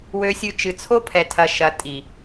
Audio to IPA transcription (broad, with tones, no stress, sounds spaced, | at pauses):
w ø˧ sʲ ɨ˧ t͡ʃ ɨ˨ t͡sʰ o˦ pʰ ɛ˨ tʰ ɐ˨ ʃ ɐ˨ tʼ i˨